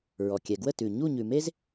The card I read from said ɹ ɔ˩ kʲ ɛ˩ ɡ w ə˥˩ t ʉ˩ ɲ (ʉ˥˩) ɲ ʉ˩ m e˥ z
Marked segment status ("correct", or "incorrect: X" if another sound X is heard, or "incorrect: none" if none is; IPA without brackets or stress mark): incorrect: u˥˩